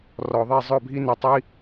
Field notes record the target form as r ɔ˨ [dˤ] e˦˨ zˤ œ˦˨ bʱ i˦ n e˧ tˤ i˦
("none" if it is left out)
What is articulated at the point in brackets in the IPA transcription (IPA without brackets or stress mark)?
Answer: ðˤ